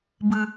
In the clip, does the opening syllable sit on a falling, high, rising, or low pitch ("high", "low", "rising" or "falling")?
high